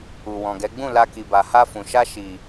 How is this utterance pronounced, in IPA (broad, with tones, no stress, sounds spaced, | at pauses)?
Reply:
u˨ w ɔ̃˨ ɡ ɛ˨˦ ɡ͡b ũ˦˨ l a˧ k i˨ b a˨ h a˧ f ũ˨ ʃ a˧ ʃ i˨